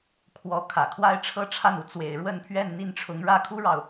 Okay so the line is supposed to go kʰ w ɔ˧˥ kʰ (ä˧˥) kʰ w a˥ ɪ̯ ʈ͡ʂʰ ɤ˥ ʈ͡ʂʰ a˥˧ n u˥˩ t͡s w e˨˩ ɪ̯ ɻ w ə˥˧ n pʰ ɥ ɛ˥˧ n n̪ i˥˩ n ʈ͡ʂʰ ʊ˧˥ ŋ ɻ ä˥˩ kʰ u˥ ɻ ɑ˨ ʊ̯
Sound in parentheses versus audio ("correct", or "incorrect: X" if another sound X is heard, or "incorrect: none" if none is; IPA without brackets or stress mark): incorrect: ä˨˩